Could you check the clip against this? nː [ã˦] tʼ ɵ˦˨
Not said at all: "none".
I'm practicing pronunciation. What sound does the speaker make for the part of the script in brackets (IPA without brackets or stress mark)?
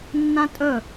ã˦